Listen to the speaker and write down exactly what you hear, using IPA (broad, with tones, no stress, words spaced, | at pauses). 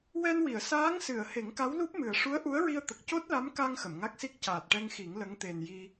wɛ˧nwi˨˩˨ə̯ saː˧˥ŋsɨ˨˩˨ə̯ he˨˩˦ŋka˧˥wlu˦˥p̚ mɨ˨˩ə̯ ʂu˧˥ə̯ʔu˧˥ə̯ɹi˧ə̯t̪ə˨˩k̚ co˦˥t̚la˧˥mka˧ŋ xə˨˩˨mŋa˦˥k̚si˦˥k̚ caː˨˩t̚ʈɛ˧ŋ xi˨˩˦ŋ lə˧˥ŋt̪e˨˩n ji˧